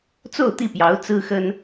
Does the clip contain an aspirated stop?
no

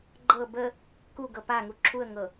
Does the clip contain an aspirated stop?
yes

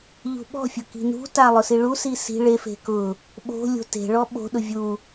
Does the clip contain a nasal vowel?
no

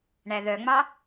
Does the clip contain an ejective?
no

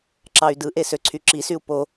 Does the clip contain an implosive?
no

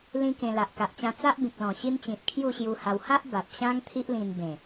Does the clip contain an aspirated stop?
yes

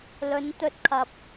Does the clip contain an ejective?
no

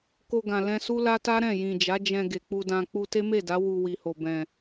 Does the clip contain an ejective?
no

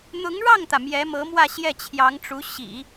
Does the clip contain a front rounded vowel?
no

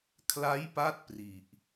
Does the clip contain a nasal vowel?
no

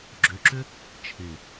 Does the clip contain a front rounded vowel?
yes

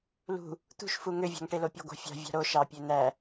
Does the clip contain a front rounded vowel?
yes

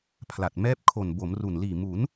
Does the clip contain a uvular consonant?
no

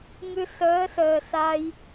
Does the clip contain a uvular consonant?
no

